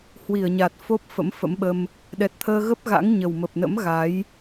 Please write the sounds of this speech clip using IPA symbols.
h w i˧˩ ə̯ ɲ a˨˩ t̚ f o˦˥ p̚ f ə̰˧˥ m f ə̰˧˥ m ɓ ə˧ m | ɗ ɛ˨˩ t̚ t̪ʰ əː˧ ɣ ə˦˥ p̚ ɣ a̰˧˥ ŋ ɲ ə˨˩ w m ə˨˩ p̚ n ə̰˧˥ m ɣ a˨˦ j

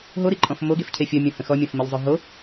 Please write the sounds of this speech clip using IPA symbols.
ɦ o ɾ i ǃʼ ɔ̃ f m o ɡ e f cʰ e fʲ ɔ mʲ ɔ̃ h ə̃ x ɔ mʲ ɔ̃ f m i ʎ zˤ ø ɦ o

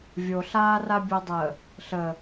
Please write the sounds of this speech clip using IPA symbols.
vʲ o ɬ aː r a bʲ o dˤ ə | ɬ ə

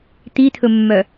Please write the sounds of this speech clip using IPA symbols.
t̪ i t̪ʰ ɵ mː œ

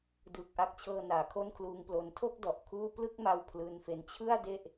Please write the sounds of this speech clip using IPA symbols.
d ɯː˨˩ k̚ ʔ a˦˥ k̚ t͡ɕʰ ɤː˧ n aː˩˦ kʰ o˥˩ n kʰ l uː˧ ŋ p l o˧ n tʰ o˥˩ k̚ d ɔ˨˩ ʔ kʰ uː˥˩ p l ɯ˥˩ k̚ m a˧ w pʰ l ɯː˧ n f e˦˥ n t͡ɕʰ ɯ˥˩ a̯ d e˥˩ ʔ

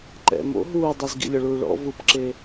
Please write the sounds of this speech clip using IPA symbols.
ǃ ɛ̰ m o̰ ɦ uː dˤ i z ɡ ḭ lʲ ɔ ɭ uː ɭ ɔ̰ v u p ǁ e

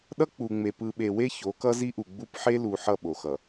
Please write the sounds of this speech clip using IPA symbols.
ɗ ʌ˦ k͡p u˨ ŋ͡m e˨ p ɯ˨ ɓ e˨ w e˦ ç o˨˦ k ʌ˦ z i˦ ʔ u˨ ɡ͡b u˦ p ħ e˦ l u˨ ħ ʌ˦˨ ɓ o˨ x ʌ˨

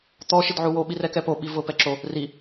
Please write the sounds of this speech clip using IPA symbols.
t̪ ɔ ʃ ɪ d ʕ u w o ɓ i r ɛ k ɛ p o ɓ i v ʊ p ɛ ǁ o | r i

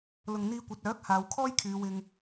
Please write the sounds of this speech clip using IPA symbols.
l ʊ˨ ŋ n̪ iː˧ kʷ ɐ˨˥ t̚ œː˨˥ k̚ h aː˨˧ w kʰ ɔː˥ j kʰ yː˨˧ w ɪ˧ ŋ

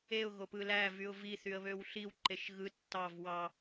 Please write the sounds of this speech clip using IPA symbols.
e ʊ̯ ɣ o p ɯ l æ v y ʊ̯ v i θ y ə̯ β ø w ɬ i w ǃ e ʃ ɣ ɯ tː ɑ v w ɑ

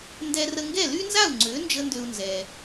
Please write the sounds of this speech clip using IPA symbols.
n d ɛ˧ r ə˧ ŋ ɡ ɛ˥˩ l y˥ n z a˥˩ u̯ ŋ͡ǀ ø˩˥ n d͡ʒ ə˧ n d ø˧ u̯ n z ɛ˩

